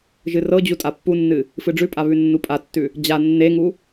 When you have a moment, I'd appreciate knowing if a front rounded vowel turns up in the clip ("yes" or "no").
no